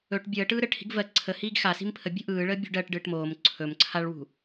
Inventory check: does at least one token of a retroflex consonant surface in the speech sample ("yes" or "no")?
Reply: yes